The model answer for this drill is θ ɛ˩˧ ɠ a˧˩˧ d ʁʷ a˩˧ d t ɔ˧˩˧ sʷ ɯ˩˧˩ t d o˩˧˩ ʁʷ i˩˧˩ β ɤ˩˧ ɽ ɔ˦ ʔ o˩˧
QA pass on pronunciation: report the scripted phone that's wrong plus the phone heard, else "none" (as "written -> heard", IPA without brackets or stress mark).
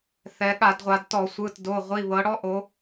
none